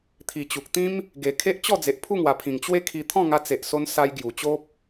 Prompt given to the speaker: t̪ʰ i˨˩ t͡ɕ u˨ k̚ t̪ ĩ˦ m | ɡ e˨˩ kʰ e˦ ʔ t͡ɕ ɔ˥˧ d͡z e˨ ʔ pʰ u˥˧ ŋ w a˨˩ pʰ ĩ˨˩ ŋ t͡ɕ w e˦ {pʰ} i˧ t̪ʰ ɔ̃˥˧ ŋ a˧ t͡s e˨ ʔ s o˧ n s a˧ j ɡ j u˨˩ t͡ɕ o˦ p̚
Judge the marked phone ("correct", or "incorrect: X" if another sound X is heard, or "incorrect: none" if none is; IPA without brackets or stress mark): incorrect: kʰ